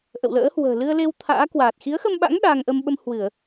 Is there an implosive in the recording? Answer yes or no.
yes